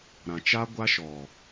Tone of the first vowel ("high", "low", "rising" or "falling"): low